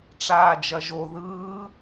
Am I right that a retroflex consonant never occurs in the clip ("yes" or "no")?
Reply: no